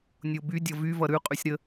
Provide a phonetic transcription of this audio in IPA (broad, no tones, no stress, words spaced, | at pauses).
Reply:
nʲobydʲʌ vyvʌ ɾʉqʼysʲ ɾə